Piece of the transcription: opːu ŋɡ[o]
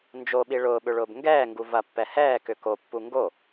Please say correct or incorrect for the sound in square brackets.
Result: correct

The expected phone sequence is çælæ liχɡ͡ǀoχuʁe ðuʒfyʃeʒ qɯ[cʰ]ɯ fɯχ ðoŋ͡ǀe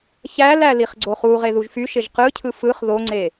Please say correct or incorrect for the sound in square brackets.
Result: correct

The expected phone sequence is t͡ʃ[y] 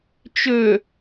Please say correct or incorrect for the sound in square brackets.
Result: incorrect: ø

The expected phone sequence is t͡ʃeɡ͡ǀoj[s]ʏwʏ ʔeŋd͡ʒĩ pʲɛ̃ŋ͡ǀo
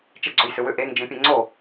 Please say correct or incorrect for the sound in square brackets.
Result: correct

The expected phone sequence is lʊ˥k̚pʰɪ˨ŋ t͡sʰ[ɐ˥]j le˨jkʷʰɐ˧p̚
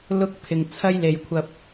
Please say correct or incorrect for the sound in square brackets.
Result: correct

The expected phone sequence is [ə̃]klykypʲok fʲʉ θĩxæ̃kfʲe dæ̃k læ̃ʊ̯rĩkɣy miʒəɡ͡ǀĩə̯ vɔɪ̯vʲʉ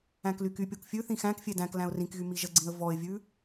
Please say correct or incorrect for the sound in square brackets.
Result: incorrect: æ̃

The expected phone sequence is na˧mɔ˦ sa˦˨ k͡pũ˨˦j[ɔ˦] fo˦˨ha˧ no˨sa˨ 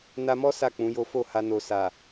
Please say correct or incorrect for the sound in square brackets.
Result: incorrect: o˦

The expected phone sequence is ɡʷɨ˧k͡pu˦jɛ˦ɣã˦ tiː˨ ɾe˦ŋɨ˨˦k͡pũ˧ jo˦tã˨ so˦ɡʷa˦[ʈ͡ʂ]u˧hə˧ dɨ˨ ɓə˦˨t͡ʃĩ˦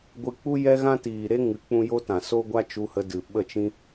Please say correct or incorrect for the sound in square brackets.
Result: incorrect: t͡ʃ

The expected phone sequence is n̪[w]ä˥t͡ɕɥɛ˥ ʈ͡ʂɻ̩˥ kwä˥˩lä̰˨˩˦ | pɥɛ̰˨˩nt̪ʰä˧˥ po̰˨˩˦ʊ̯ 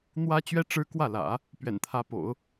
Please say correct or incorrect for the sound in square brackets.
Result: correct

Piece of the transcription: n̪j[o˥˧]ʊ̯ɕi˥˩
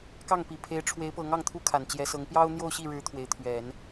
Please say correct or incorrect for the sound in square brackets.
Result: correct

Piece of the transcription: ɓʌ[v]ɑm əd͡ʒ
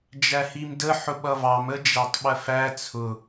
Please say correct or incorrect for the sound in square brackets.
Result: correct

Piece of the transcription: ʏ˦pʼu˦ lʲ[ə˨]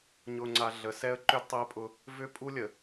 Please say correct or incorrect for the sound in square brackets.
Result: correct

